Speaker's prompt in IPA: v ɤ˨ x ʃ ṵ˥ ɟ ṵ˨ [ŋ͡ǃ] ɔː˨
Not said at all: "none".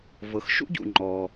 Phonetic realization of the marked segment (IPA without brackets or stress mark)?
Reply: ŋ͡ǃ